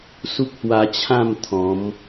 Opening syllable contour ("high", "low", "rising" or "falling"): high